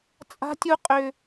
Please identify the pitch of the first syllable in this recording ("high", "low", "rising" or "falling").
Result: high